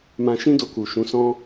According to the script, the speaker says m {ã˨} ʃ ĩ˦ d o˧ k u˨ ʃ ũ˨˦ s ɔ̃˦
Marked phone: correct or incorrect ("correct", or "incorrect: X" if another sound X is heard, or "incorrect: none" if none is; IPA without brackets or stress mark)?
incorrect: ã˧